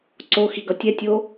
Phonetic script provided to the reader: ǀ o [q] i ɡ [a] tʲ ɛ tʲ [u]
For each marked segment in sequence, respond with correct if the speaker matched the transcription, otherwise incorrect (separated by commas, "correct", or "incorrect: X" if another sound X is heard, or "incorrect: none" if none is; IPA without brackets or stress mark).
incorrect: x, incorrect: ʌ, incorrect: o